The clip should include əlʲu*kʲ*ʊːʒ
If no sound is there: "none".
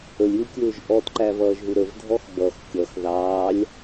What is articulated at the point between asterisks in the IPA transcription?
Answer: kʲ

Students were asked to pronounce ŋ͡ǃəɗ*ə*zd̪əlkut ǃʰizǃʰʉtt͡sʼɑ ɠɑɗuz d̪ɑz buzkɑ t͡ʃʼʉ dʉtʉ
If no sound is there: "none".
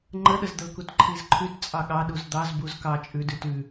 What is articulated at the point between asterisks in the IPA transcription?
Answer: ə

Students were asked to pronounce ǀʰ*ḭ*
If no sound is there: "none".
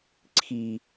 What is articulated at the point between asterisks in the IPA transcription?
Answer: i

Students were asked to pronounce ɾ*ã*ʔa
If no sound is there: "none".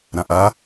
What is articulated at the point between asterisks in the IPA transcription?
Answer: ã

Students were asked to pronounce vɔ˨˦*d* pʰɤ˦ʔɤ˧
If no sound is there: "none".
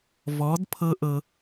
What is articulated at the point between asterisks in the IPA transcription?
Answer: d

